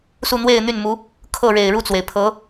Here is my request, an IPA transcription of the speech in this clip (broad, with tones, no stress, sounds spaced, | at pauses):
s u˥˧ n̪ w e˥˧ ɪ̯ n̪ y˥˩ n m u˧˥ | kʰ ɤ˥˩ ɻ e˨˩ ɪ̯ ɻ u˥˩ t͡s w e˩ ɪ̯ pʰ ɤ˧˥